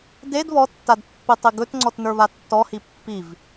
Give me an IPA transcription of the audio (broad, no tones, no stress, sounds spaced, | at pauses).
d e d β ɔ tː a d pː i tˤ i ɡ ɵ t ŋ͡ǀ ɔ t n ə˞ β a tː ɔ h i pː i v